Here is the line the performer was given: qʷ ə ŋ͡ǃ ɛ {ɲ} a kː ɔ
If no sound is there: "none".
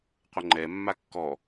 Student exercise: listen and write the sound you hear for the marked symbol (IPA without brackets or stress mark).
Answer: mː